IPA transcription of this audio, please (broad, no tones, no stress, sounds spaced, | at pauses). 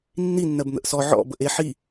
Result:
nː i nː ɜ b n̪ ə̰ ʔ s ɔ ʕ ɔ̰ b ə ʔ e ħ i